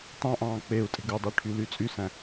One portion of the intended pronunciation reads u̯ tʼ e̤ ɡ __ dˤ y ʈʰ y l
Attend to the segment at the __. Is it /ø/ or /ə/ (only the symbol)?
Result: ø